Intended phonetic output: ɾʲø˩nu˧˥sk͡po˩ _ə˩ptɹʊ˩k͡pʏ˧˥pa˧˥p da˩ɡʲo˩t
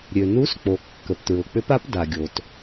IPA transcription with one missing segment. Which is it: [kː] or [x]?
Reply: kː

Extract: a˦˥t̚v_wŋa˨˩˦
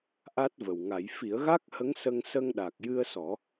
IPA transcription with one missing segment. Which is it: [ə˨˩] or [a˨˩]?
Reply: ə˨˩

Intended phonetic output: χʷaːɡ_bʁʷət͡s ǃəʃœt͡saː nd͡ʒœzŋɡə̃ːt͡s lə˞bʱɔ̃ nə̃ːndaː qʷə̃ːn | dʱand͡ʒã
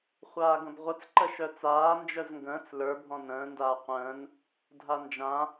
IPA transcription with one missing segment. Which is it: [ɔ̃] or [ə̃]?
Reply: ə̃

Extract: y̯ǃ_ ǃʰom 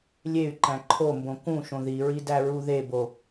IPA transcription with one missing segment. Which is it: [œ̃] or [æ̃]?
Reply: æ̃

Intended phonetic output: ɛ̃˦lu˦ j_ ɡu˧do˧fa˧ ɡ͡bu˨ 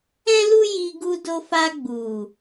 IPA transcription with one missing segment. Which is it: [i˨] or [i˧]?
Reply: i˧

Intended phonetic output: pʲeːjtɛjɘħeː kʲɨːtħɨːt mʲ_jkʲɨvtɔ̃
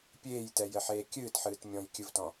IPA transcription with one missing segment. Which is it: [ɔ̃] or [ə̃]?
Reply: ɔ̃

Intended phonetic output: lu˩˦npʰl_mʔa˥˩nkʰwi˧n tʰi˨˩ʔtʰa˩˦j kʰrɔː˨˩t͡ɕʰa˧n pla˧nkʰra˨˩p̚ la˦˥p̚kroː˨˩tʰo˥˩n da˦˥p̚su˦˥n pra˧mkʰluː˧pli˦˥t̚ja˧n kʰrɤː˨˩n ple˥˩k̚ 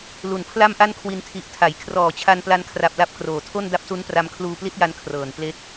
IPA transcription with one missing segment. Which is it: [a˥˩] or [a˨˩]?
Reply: a˥˩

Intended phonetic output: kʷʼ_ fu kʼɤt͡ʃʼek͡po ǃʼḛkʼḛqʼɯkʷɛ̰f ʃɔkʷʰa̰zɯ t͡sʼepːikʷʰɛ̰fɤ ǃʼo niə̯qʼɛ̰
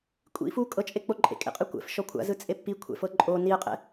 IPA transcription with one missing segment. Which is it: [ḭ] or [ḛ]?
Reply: ḭ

